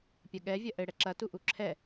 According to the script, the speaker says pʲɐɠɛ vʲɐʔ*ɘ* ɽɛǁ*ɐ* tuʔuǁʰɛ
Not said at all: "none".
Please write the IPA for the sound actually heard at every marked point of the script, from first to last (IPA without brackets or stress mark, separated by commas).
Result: ɘ, ɐ